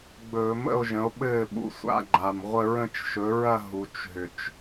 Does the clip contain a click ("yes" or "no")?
yes